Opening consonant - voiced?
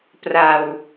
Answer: no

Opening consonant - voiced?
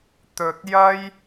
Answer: no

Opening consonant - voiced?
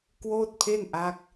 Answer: no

